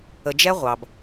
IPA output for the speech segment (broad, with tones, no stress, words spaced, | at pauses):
ə˨d͡ʒɛ˦ ʁʷɑ˨b